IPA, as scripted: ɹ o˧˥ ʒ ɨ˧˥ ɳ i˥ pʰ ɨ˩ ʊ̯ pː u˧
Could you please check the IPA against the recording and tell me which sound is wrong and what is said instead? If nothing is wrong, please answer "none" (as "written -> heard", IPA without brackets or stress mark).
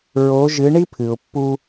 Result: none